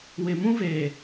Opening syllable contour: low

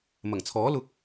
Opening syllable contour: low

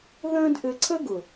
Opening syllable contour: high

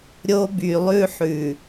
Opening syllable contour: high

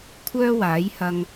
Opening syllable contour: high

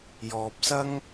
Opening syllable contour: low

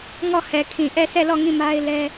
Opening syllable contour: falling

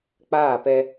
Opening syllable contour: falling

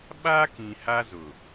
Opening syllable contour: high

